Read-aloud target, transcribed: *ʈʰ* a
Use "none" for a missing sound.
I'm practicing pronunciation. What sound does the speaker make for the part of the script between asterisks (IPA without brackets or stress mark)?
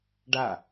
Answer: ɖ